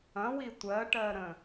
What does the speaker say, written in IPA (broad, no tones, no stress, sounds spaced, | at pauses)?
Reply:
ɐ̃ w i tʷ ɜ ʈ ɜ ɾ ə̃